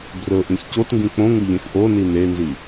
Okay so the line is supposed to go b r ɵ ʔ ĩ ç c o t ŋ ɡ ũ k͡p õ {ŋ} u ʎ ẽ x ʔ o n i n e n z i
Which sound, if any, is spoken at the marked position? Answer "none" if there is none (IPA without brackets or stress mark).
ŋ